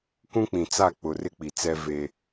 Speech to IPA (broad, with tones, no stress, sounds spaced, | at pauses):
k ũ˦ k͡p ĩ˨ t͡s a˦˨ k͡p ʊ˨ r ɪ˦ k͡p i˨ t͡s ɛ˦ v e˦